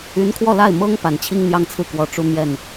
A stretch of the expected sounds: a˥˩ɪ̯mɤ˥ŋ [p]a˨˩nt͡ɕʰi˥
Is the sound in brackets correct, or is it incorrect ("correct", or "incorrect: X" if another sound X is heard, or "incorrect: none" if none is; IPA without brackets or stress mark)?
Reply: correct